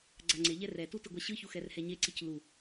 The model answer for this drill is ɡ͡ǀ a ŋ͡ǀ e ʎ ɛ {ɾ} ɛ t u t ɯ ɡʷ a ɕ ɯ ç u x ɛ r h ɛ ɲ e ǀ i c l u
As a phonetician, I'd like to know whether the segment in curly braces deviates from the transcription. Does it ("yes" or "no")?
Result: yes